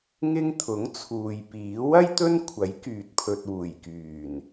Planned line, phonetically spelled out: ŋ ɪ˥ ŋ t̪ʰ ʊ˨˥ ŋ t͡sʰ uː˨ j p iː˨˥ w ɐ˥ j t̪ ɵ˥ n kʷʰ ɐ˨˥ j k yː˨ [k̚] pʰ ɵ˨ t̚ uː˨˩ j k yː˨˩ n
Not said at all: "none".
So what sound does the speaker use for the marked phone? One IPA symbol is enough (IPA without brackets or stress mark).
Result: t̚